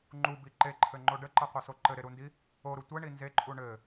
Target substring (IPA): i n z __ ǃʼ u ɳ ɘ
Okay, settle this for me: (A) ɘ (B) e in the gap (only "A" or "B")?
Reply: B